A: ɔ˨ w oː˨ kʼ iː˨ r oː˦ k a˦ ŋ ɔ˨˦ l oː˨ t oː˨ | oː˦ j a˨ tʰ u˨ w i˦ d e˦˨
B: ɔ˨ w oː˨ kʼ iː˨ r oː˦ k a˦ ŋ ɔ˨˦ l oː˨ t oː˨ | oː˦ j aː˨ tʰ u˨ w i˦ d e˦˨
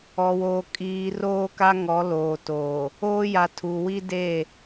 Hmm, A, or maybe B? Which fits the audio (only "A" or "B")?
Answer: A